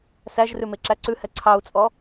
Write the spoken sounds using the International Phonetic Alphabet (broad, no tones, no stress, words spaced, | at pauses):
sæʒrʉ meǁæǀʉhɛ ǀʰɑu̯t͡sʼɔ